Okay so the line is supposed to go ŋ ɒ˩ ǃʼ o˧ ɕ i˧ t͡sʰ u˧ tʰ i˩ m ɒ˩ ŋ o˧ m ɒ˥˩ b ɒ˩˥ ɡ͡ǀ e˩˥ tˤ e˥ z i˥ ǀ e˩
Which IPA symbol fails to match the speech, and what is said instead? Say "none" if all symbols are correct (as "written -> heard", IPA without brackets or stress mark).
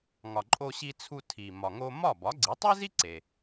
none